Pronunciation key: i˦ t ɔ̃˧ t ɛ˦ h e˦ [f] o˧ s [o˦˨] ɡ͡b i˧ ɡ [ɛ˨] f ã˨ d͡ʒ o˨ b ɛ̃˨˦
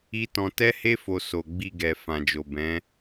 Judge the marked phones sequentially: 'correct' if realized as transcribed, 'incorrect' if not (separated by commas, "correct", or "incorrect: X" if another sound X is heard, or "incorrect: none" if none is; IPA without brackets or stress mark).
correct, incorrect: o˨, correct